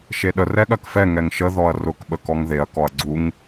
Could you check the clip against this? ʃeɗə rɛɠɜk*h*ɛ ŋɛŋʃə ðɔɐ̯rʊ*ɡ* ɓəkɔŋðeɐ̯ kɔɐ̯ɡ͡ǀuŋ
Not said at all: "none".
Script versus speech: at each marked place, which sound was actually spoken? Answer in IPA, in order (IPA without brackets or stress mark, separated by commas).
f, k